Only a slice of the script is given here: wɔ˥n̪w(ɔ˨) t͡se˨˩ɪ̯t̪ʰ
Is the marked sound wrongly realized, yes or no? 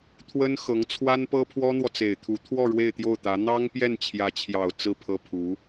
no